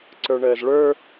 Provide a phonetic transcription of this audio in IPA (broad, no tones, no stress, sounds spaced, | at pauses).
ǀ ə˞ ɳ əː z ɭ ə˞